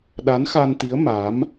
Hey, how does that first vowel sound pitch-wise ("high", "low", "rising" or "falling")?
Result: rising